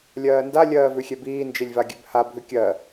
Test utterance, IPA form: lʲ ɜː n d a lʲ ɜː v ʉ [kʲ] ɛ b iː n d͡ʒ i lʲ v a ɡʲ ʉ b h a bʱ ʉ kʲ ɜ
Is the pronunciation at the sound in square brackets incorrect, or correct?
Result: incorrect